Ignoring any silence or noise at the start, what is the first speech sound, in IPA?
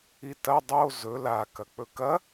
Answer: i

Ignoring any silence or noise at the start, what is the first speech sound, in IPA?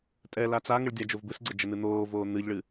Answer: tʼ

